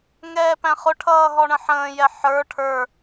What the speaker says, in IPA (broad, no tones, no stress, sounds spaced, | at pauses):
ŋ ɛː p æ̃ χ ʊ ʈʰ ʌː ɦ ɔ ɳ ə̃ ħ ə̃ː j ɛ ħ ə˞ ʈʰ ə˞